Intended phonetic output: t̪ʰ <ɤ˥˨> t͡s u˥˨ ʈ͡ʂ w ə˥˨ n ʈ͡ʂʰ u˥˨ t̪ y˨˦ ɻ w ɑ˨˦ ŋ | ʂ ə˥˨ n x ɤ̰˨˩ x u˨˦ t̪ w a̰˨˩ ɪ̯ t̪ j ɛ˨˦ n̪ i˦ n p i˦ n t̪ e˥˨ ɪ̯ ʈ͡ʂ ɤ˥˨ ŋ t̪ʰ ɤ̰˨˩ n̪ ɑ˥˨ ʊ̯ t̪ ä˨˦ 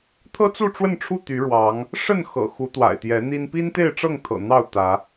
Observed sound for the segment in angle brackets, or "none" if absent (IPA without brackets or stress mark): ɤ˦